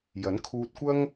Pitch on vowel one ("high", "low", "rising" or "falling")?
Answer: rising